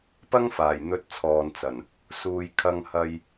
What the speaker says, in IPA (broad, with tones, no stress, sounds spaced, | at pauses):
p ɐ˥ ŋ f aː˨˩ j n̪ ɵ˧ t̚ t͡sʰ ɔː˨ n t͡s ɐ˨˩ n | s uː˧ j kʰ ɐ˧ ŋ h ɐ˧ j